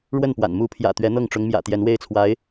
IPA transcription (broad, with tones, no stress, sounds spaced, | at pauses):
ɻ w ə˥˩ n p w a̰˨˩ n m u˧˥ pʰ j ä̰˨˩ t̪ ɥ ɛ˧˥ n̪ ɤ˥˩ ŋ ʈ͡ʂ ʊ˧˥ ŋ m j ä̰˨˩ t̪ j ɛ˧˥ n w e˥˩ ɪ̯ t͡sʰ w a˧˥ ɪ̯